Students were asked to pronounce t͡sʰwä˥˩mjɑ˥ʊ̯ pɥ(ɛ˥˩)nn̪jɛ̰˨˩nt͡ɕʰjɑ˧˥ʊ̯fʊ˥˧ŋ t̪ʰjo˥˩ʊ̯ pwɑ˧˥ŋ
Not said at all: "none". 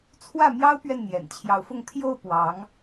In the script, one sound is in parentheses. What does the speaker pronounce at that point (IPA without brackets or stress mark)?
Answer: ɛ˥˩